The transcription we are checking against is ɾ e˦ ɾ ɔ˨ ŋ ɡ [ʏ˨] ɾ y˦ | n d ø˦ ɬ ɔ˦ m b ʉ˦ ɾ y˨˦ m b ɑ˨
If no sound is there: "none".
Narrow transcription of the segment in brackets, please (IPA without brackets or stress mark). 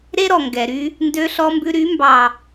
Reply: ɛ˨